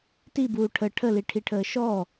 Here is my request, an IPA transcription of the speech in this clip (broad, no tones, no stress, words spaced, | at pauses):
tibuː ʈʰə ʈʰəliʈʰiʈʰəː ʃɔ